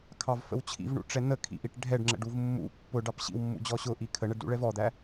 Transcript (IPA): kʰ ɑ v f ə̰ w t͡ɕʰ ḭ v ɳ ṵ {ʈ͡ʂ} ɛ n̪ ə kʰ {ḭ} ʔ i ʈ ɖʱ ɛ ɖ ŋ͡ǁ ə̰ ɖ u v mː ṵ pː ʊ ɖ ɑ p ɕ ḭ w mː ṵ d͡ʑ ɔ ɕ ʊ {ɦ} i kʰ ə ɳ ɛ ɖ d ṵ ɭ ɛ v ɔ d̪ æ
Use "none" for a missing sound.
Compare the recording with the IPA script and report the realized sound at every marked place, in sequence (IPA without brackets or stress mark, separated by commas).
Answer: ʈ͡ʂ, ḭ, ʔ